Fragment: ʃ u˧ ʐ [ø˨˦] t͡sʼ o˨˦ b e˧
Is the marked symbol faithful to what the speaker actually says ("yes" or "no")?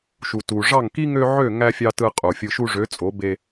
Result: yes